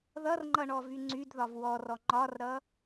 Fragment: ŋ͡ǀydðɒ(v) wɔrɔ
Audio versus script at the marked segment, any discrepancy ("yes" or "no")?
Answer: no